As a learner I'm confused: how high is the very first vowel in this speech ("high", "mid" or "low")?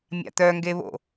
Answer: low